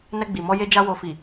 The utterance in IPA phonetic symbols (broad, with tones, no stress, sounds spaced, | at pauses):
n ɛ˧ ɡ͡b i˨ m ɔ˧ j e˦ d͡ʒ a˦ w o˧ f i˨